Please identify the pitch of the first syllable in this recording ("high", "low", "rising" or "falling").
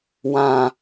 low